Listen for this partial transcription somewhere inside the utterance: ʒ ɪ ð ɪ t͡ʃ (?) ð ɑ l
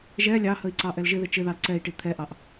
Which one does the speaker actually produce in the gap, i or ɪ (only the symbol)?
ɪ